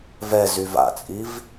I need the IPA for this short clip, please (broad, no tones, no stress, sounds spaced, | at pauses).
v ɛ z y v a̰ t͡sʼ i v